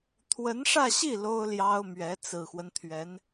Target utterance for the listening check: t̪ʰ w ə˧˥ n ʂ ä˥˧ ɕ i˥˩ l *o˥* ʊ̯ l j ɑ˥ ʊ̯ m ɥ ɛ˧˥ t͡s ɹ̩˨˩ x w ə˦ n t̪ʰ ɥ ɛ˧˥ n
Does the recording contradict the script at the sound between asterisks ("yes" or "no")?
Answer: no